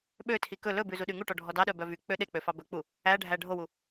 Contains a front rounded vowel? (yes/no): yes